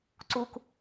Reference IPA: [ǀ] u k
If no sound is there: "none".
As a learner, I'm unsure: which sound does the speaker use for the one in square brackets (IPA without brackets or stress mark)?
ǀ